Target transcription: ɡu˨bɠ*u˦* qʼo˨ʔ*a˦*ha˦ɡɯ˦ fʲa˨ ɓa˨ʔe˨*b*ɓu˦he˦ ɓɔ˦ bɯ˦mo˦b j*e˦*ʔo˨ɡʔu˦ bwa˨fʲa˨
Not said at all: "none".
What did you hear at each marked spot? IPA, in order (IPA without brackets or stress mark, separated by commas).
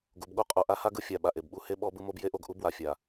o˦, a˦, b, e˦